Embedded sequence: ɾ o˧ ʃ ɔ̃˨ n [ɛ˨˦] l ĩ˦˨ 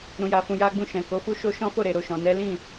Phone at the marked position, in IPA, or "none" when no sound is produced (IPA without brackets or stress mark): ɛ˨˦